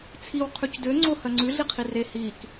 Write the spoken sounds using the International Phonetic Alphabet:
t͡sʰ i w qʰ ʉ c d ø ŋ͡ǀ o h ɜ ŋ͡ǀ ʉ ɮ i qʰ i r e h i k

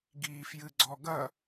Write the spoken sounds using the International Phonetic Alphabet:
ɡ iː f j ɨ ɡ͡ǀ ɔ ɡ ɐ

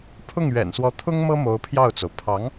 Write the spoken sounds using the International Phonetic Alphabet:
pʰ ʊ˥˩ ŋ ɥ ɛ̰˨˩ n s w ɔ˧˥ t̪ʰ ʊ˥ ŋ m ɤ˥ m o˧˥ ʊ̯ pʰ j ɑ˥˩ ʊ̯ t͡s o˩ ʊ̯ pʰ ɑ˧˥ ŋ

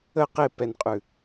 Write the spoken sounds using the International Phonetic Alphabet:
ə q e p ɛ n qʼ ʉ

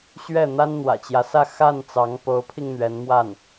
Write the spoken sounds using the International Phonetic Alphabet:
ɕ ɥ ɛ˥˩ n̪ a˥ n n̪ w ä̰˨˩ t͡ɕ j ä˦ s ä˥˧ x a˥˩ n t͡s ɑ˧˥ ŋ p o˧˥ ʊ̯ pʰ i˧ ŋ n̪ ɥ ɛ˧˥ n m w a˥˩ n

